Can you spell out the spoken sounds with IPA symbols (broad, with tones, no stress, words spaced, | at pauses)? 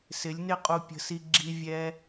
sɪ˨˦lʲnɪ˦qʼu˧pʲə̤˧ si˧ɡ͡ǁi˧ vʲɛ˦